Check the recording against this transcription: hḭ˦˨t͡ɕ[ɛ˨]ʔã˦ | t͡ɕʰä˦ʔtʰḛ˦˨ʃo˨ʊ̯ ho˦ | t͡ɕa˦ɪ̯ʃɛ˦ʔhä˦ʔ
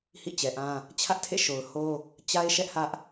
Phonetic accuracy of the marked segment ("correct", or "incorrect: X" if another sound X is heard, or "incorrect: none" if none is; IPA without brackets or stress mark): correct